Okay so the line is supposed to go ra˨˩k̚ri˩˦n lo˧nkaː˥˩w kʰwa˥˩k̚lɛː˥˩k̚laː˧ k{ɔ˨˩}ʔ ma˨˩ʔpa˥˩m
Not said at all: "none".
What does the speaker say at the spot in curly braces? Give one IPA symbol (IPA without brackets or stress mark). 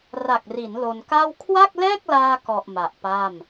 ɔ˨˩